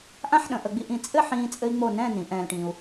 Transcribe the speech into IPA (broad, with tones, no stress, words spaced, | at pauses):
ʔã˥˧ħɗə̃˩˧ ʔə˩˧ ɡ͡bi˧ʔĩ˧˩ t͡sʼɘ˥˧ħĩː˧ t͡sʼɘ˥i̯ŋ͡mo˥˧ nɛ̃˥˧nĩ˩˧ ʔɛ̃ː˧lʈĩː˧u̯